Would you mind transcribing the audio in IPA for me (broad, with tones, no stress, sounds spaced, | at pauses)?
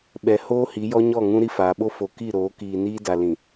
ɓ ɛ˨ h oː˦ h i˨˦ j ɔ˦ ɲ ɔ˦˨ ŋ ũ˦ ɾ i˦ f aː˨ ɓ o˦ f o˨ k i˦˨ ɾ oː˨˦ k iː˨ n iː˦ d a˨ l ĩ˨